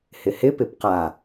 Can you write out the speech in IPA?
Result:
hɪhɪ pɪpqa

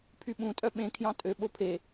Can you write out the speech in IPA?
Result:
pʰyɓũ tʼœɓẽ kʰjɑ̃tʼø ɓopʰe

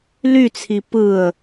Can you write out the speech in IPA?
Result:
lyt͡sʰi pɯə̯

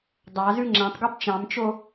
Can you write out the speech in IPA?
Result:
dˤɑzʉ ŋ͡ǁæ̃tˤɡob t͡ʃɑ̃mt͡ʃo

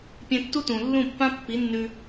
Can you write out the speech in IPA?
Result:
pʲẽ˧tːu˦tũ˨ lːũ˦˨pːã˦pːi˨˦nːʉ˧

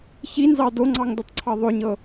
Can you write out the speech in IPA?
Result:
çinzɑ doŋ͡ǀɑŋdɵtˤǀʰɑ ðˤɵɲɤ

